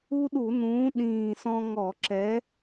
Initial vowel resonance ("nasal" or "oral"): oral